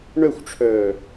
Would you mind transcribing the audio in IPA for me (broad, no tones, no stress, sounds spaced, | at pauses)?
ɳ œ xʷ ʈ͡ʂʰ œː